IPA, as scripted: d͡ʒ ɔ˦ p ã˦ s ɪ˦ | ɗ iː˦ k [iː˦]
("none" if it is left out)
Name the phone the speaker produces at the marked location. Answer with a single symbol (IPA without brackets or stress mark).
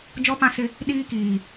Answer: iː˨